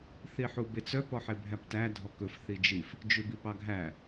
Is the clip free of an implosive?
yes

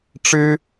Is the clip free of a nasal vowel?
yes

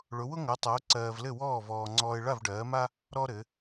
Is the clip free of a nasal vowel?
yes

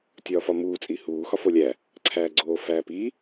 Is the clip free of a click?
no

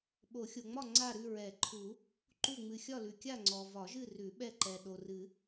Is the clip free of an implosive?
no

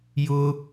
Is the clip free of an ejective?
yes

